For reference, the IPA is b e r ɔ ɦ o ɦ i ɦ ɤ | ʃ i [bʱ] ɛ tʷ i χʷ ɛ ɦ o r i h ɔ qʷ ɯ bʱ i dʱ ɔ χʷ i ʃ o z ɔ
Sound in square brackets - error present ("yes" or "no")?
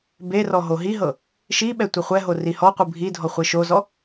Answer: yes